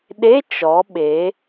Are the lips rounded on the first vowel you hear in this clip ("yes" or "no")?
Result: no